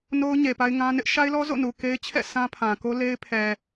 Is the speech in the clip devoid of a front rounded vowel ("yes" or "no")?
yes